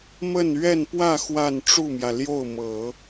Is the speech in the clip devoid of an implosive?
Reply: yes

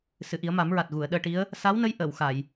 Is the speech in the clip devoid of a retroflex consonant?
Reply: no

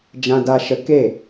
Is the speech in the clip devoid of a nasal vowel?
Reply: no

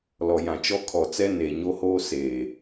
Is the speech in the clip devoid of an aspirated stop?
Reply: no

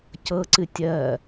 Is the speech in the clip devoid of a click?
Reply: no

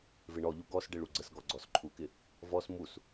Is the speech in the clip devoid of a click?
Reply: no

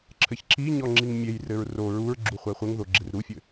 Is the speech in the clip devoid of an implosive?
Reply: yes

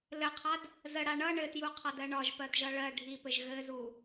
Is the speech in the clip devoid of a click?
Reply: yes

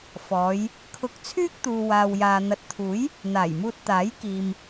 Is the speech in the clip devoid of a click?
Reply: yes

